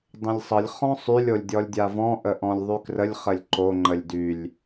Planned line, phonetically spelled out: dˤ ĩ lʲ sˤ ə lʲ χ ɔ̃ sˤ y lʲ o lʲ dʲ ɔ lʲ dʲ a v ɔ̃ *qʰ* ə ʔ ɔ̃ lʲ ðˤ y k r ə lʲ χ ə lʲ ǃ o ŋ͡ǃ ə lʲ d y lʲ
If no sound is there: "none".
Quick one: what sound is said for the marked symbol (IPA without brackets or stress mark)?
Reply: ʔ